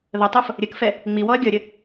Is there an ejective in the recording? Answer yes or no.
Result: no